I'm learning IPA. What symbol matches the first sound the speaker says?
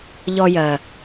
ʎ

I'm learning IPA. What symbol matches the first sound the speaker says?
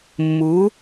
mː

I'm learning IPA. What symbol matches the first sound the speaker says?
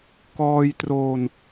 k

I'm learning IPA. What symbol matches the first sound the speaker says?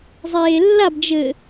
zˤ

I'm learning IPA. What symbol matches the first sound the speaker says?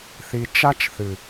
θ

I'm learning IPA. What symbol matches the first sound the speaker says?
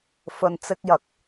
f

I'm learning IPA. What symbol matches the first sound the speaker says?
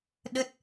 ɗ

